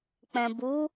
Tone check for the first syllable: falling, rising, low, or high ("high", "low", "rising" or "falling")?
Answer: low